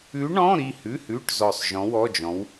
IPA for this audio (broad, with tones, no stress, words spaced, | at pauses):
ʉ˧˥ ɳɔ̃˧˥˧ɾi˥˨ hʉ˧˥˧hʉ˧˥˧ʈ zɔ˧˩sˤ ʒɔ̃˧˥wɔ˧˥˧d͡ʒɔ̃˧˥w